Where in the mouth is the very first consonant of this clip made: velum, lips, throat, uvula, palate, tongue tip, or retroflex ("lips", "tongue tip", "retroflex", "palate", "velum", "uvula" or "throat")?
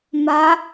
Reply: lips